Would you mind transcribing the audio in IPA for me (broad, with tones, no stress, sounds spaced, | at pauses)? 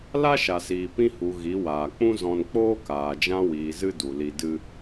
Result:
l a˦ ʃ a˨ s iː˨ p ĩ˧ h u˨ ɣ i˨˦ w aː˨ k͡p ũ˦ z ɔ̃˧ n k͡p oː˦ k aː˨ d͡ʒ ã˧ w iː˨ z ɨ˧ d u˨ l i˧ d ɨ˦